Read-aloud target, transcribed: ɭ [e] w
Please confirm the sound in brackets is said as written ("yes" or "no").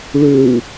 no